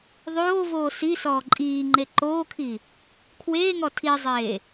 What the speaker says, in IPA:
ðˤ oː v oː s i s ɔː ǃʼ iː ŋ͡ǃ e ǃ oː kʰ i | kʰ w eː ŋ ɔ tʰ i zˤ eː

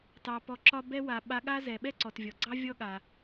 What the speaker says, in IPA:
t ɑ˩ p ɔ˩ ǁ ɒ˧ b ɛ˧ w a˩ ɓ a˧ ɠ a˥ z ɛ˩ ɓ ɛ˥ ǀ ɔ˩ t vʲ ɔ˩ ɡ͡ǀ ɑ˥ vʲ ɔ˥ ɠ a˩

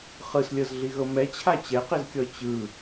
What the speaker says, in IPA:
χ ɯ s lʲ ɤ z ɮ i ɣ ɤ m ɛ t͡ɕʰ a t͡ɕ ɛ q i z kʲ ɔ t͡ɕ ɯ

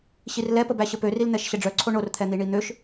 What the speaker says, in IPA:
ɕ i r l ɛ p ə b æ ɕ ə p ø r i l n̪ ɛ ʃ ɕ ə ɖ͡ʐ œ ǀʰ o ɳ o r t̪ʰ ɛ n̪ i ɳ i n̪ ø ʃ

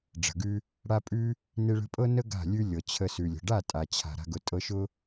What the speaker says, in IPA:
ɖ͡ʐ ə̤˨ ɡ ʉ˧ | ɽ a˦ pʼ ʉ˦ | n e˧ ɭ ə̤˧ pʼ ɤ˦ n ə˦ ɡ a̤˦˨ lʲ ʉ˦ lʲ ɤ˨ t͡ɕʰ ə˧ s ʉ˨ lʲ ə̤˨ ɖ a˦˨ tʼ a˨ t͡ɕʰ a̤˨ ɾ a̤˦ ɡ ʊ˧ tʼ ɤ˧ ʃ ʊ˦

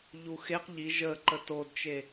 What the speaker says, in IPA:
ʎ u x e q ʎ i ʒ ə ǃ ə t o d t͡ʃ e

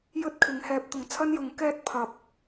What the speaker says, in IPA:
j ɵ˥ t̚ kʰ ɪ˨˧ ŋ h ɛː˧ p̚ t̪ ʊ˨ ŋ t͡sʰ ɐ˥ n j ʊ˨˥ ŋ k ɛː˥ t̚ pʰ ɐ˨˥ p̚

